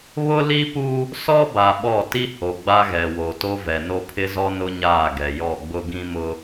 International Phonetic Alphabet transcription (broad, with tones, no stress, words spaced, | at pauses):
βʊ˦li˦pu˦ | sɔ˦ba˨ ɓɔ˦˨ti˦ho˨ ɡ͡ba˦ɣɛ˨wo˨to˦ vɛ˨no˦pʰɪ˦zɔ˦ nʊ˦ɲaː˦˨ɡɛ˨ jɔ˦˨ɡ͡bʊ˦ ɡĩ˦mʊ˦